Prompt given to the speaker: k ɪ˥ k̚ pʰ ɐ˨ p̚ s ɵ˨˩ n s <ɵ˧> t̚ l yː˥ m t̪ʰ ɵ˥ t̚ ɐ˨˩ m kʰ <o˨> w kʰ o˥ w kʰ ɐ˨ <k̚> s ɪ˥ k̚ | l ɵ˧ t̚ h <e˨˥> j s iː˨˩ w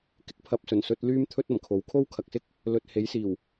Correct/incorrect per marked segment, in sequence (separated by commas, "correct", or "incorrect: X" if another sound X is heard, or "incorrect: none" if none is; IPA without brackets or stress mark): correct, incorrect: o˨˥, correct, correct